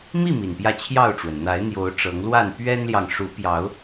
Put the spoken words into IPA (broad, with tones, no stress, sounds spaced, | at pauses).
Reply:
m i˥˨ m i˨˩ n p j ä˥˨ t͡ɕʰ j ɑ˥˨ ʊ̯ ʈ͡ʂ w ə˩ n n̪ a˨˦ ɪ̯ n̪ j o˨˦ ʊ̯ ʈ͡ʂ ɤ˨˦ ŋ l w a˥˨ n p ɥ ɛ˦ n l j ɑ˨ ŋ ʂ u˨˦ p j ɑ˨˦ ʊ̯